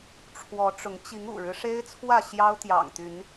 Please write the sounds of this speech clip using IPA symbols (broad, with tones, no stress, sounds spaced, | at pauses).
ʈ͡ʂʰ w ɔ˨˦ ʈ͡ʂ ʊ˨˦ ŋ t͡ɕ i˨˦ ŋ ṵ˨˩ ɻ ɻ̩˦ ʂ e˦ ɪ̯ t͡sʰ w ä˥˨ ɕ j ɑ˦ ʊ̯ t̪ j ɑ̰˨˩ ŋ t̪ y˨˦ n